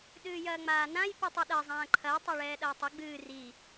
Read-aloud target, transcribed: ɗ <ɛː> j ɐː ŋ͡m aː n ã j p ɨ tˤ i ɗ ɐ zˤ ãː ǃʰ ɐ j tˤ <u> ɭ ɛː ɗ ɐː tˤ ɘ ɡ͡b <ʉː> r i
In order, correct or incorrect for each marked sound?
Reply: incorrect: ɨː, incorrect: o, incorrect: ɨː

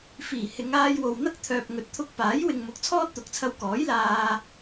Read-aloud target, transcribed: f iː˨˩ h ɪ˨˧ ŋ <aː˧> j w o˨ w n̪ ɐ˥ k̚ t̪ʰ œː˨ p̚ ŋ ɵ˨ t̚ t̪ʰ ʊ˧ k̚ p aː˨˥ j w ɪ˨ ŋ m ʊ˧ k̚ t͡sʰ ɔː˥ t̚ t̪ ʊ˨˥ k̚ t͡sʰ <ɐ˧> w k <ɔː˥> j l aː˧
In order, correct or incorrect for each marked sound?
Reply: correct, correct, incorrect: ɔː˨˥

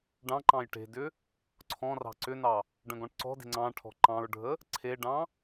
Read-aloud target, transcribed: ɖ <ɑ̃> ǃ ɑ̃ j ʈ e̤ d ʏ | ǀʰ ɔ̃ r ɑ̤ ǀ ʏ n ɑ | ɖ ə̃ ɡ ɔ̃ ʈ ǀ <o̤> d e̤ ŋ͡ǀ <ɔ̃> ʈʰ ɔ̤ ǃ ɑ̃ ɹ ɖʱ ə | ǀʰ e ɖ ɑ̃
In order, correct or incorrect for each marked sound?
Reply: correct, incorrect: ɔ̤, incorrect: ɑ̃

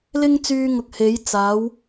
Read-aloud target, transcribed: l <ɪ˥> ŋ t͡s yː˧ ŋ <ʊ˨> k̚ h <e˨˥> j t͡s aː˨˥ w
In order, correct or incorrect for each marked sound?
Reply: correct, correct, correct

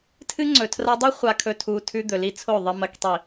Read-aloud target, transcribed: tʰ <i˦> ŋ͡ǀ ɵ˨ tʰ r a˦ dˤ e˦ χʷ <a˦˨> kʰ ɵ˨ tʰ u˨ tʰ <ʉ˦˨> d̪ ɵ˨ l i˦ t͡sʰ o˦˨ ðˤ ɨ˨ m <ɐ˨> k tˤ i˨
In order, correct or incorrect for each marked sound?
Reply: incorrect: ɨ˦, incorrect: a˨, incorrect: ʉ˦, correct

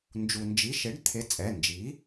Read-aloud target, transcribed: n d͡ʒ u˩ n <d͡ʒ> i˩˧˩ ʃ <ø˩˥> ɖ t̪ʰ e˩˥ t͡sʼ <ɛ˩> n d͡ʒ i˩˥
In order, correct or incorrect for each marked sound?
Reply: correct, incorrect: e˩˥, incorrect: ɛ˩˧˩

